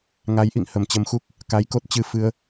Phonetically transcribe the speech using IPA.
ŋ a˨˦ j ʔ ḭ˧˨ ŋ h ə˨˩ m t͡ɕ ə˧ m x u˦˥ k̚ | k a˨˦ j k o˦˥ t̚ t͡ɕ ɨ˧ f ɨ˧ ə̯

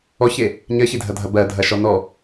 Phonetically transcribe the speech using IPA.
ɔ ç e | ɲ ɜ ç i dʱ ɐ dʱ ɐ b ɜ dʱ ɐ ʃ ɔ n ɔ

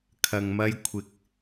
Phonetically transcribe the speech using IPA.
kʰ ɐ˨ ŋ m ɐ˧ j kʷʰ ɪ˨ k̚

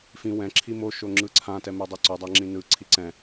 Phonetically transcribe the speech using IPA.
f ĩ w ɛ̃ ǁʰ i m o ʃ o ŋ͡ǁ ɯ ǀʰ ã t ɛ m e dˤ e ǀ u dˤ a ŋ͡ǁ ĩ n ɯ ǀʰ i ǀ ɛ̃

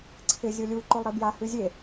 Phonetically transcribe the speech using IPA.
ǀʰ ɪ zʲ o lʲ u ǃ o lˠ ɾ i b j a h ʉ zʲ e

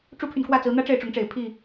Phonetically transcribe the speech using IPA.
ʈ͡ʂ u˦ pʰ y˨ n k w ä˥˨ t͡s ɹ̩˨˦ n̪ ä˦ ʈ͡ʂ e˥˨ ɪ̯ ʈ͡ʂ ʊ˨˦ ŋ ʈ͡ʂ e˨˩ ɪ̯ pʰ i˥˨

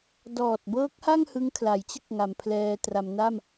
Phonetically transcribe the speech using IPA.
d ɔː˨˩ t̚ b ɤː˦˥ k̚ h a˥˩ ŋ h ɯ˦˥ ŋ kʰ l a˩˦ j t͡ɕ ɯ˥˩ k̚ ŋ a˨˩ m pʰ l ɛː˧ t r a˩˦ m n a˥˩ m

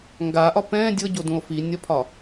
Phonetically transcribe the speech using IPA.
ŋ ɡ a ʔ ɒ p ɛ̃ dʲ ɤ ɟ o d ũ o̯ f i nʲ ɒ pʰ ɒ

